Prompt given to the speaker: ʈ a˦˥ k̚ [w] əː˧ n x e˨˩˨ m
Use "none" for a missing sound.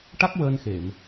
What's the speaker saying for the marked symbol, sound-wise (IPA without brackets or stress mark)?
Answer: w